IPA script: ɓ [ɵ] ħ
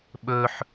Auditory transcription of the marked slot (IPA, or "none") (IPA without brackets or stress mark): ɵ